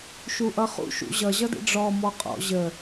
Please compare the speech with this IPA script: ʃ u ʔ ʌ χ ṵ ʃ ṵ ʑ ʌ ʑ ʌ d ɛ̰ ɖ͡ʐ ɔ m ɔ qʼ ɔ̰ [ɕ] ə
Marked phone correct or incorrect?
incorrect